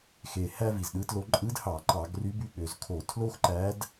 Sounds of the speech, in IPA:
x e˨˩ h æ˥ v i˨˩ z ɗ ɯ˧˥ t l o˧˥ ǃʼ ɯ˧˥ d h ɑ˧˩˧ ǃ ɑ˧˩˧ ɡ r y˧˥ b y˧˥ ɠ ø˩˧ z kʰ o˧˩˧ tʰ l o˥ x ǃ æ˧˥ d

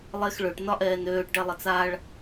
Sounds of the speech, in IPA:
lˠ e x ɭ ø ʈ n ɒ ʔ ɛː n øː ʈ ɖ ɛ lˠ ə t͡s a ɭ

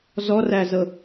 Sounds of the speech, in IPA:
z ɔ r æ z ɤ

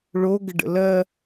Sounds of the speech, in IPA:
ɭ o ɡ ə ɖ ə̰ l ɜ

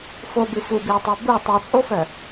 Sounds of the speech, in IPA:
f o b ɨ f u b i ʊ̯ tˤ œ b u tˤ i t͡sʼ o f œ

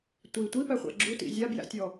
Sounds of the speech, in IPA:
tʷ i tʷ i p æ χʷ æ̰ ɡ͡ǁ u t ḭ zʲ a b j æ̰ tʲ ɔ

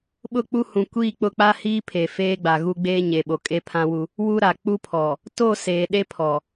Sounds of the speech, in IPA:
ɓ ʊ˦˨ k͡p u˦ h ũ˨ kʷ iː˦˨ k͡p ʊ˦˨ k͡p a˦ h iː˦ pʰ e˨ f eː˦ ɡ͡b a˨ ɣ u˦ ɡ͡b eː˦ ɲ e˨ ɓ o˨ kʼ e˦ pʰ ã˦ w u˦ | w u˦ ɾ a˨ k͡p u˦ pʰ ɔ˨ | t o˦˨ s eː˨ ɗ e˦ pʰ ɔ˨

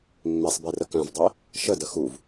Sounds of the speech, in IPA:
mː e sˤ b e r ə k œ̃ v dˤ e | ʃ ə d ə x u v

